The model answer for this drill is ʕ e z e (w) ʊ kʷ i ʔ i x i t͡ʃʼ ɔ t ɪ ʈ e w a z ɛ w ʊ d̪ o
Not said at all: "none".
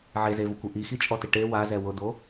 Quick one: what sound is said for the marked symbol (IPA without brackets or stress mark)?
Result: v